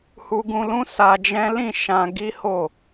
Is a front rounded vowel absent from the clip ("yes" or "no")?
yes